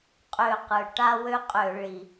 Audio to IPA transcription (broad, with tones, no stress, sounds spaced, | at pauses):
qʼ ø˧˩ q ɯ˩ ʈ a˥ w ø˥ qʼ ø˧˩˧ ɭ i˩